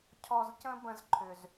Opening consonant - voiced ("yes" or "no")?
no